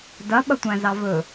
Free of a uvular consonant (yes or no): yes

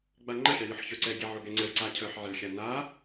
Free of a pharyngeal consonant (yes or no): no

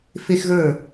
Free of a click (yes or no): yes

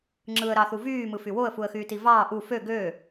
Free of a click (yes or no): no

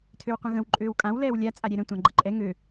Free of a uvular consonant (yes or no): no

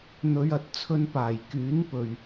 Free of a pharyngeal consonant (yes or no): yes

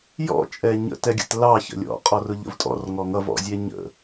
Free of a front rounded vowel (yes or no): yes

